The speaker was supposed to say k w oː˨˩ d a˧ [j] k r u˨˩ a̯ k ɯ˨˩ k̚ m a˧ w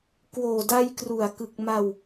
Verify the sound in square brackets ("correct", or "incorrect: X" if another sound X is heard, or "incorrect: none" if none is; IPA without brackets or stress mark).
correct